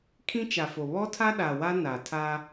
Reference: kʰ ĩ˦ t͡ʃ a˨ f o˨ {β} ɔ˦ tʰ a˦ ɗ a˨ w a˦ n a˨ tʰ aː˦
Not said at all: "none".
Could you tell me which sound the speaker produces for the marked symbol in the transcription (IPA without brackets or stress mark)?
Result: β